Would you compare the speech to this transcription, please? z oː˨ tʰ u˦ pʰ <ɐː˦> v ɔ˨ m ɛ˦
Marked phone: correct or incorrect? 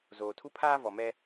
incorrect